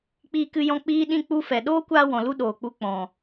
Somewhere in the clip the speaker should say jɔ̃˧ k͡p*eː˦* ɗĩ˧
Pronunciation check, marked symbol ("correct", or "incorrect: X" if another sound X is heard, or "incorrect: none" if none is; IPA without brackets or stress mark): incorrect: iː˦